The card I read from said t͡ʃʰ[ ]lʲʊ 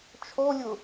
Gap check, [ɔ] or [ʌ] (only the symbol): ɔ